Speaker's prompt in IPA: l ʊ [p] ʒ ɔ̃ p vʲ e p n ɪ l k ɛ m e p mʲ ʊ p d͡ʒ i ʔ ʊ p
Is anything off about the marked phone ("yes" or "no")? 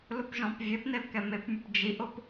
no